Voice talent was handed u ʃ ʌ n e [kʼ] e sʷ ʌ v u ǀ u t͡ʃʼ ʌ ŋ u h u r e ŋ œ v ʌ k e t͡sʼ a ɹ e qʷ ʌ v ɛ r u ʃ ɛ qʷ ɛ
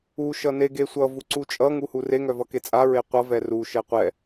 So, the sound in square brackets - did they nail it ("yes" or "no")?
no